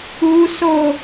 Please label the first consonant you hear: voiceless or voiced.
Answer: voiceless